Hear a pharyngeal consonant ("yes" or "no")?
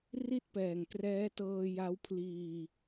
no